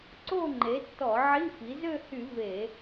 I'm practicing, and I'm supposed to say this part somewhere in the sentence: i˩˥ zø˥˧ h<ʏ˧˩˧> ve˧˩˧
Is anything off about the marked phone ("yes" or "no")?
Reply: yes